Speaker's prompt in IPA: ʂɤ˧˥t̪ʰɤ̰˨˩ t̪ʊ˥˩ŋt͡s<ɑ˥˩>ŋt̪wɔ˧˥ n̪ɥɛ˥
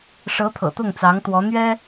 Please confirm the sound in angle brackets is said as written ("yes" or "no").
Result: no